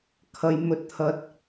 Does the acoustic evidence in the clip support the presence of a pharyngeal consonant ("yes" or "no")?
no